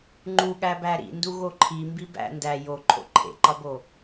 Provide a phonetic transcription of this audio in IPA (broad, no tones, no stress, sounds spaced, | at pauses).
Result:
ŋ͡ǃ u ɠ æ b æ ɾ ḭ n d u ɣ o ǃʰ i m b i b æ̰ n d æ j o ǃʰ o̰ ǃʰ ḛ ǃ ɒ b o